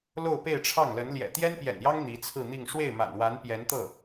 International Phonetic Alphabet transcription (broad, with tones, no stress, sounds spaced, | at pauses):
l o˥˧ ʊ̯ p e˥˧ ɪ̯ ʈ͡ʂʰ ɑ˥˩ ŋ l ə˧˥ n l j ɛ̰˨˩ t̪ j ɛ˥ n p j ɛ̰˨˩ n j ɑ˥ ŋ n̪ i˧˥ t͡sʰ ɹ̩˥˧ n̪ i˥˧ ŋ ʂ w e˥˩ ɪ̯ m a̰˨˩ n w a˧˥ n p j ɛ˧˥ n t̪ ɤ˥˩